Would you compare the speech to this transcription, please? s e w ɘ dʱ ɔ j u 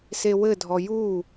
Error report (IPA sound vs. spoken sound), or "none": none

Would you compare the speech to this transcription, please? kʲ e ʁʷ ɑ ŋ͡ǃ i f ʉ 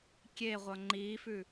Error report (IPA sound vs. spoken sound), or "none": ɑ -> ʌ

